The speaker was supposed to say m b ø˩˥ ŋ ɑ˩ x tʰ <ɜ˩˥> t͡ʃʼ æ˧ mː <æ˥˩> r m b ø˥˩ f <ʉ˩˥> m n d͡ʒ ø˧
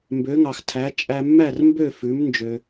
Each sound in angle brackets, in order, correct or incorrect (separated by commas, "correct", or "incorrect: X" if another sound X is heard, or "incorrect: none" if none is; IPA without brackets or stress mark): incorrect: æ˩˥, correct, correct